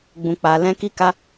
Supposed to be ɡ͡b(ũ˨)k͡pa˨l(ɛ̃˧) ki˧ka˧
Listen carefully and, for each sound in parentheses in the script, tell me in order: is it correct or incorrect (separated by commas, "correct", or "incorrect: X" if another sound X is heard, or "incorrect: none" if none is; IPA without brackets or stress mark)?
correct, correct